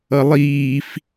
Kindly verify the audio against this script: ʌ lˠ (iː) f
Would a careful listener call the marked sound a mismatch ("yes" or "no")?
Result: no